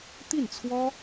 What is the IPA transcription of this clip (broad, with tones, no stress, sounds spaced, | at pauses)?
t̪ i˥˩ n t͡sʰ w ɔ˥